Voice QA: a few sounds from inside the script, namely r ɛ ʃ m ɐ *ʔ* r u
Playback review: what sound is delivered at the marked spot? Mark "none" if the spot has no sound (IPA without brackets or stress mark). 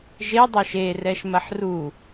ħ